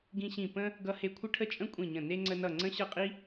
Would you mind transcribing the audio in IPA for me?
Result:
ɡĩ˥ɕĩ˥˨ pə̃˥ | ɡʌ˥he˥ kʷʰə˥ʈʰə˥t͡ʃʼə̃˥ kʷʼĩ˥˨ɲə̃˥˨ ne˥ŋ͡ǀə˥nʌ˥˨ ŋ͡ǀə̃˥ɕʌ˥˨qʼi˥

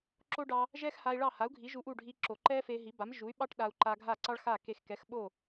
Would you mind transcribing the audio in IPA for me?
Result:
ǁo˥ɖɑ˧ | ʒɛ˥xha˧i̯ɭɑ˥˩ ha˩˥u̯ɡʱi˩˥ ʒu˧ʔu˥˩ɖʱi˧ ǁo˩ǃɛ˥fe˧ɦi˩˥ ba˩˥mʒu˩˥y̯ɓɑ˥ʈ ɗa˧u̯ǃa˧ ɡʱa˥˩ǀɑ˥ɭxa˥˩ ke˧xkɛ˩˥xɓo˥˩

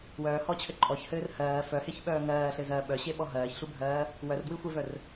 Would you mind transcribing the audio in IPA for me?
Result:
wœːhɔt͡ɕʰɘ ǃʼɔçhɘːr hɜː fœheçɓœː ŋɜːɬɘzɜː ɓœɕeɓɔ ɦɜːçɬubʱɜː | wœrdwixʷevœr

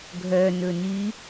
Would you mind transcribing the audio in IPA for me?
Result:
ɡʱœnɵny

